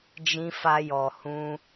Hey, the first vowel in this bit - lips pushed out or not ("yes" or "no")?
no